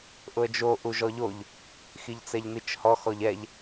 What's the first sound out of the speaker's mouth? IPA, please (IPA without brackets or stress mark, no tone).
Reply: ʔ